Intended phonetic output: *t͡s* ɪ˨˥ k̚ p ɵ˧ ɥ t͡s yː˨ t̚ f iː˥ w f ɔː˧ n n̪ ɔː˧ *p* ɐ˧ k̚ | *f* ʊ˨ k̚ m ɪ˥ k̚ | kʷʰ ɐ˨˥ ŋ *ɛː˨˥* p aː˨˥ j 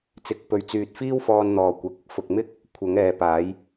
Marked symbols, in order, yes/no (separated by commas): yes, no, yes, no